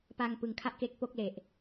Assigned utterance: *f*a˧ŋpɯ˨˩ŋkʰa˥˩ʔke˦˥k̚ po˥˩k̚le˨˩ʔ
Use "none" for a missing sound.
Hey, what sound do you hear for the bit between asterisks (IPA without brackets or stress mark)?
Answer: p